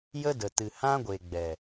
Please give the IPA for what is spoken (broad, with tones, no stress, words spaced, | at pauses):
jə˦də˨tɨ˨ hã˦ɡʷe˨ ɡ͡bɛ˨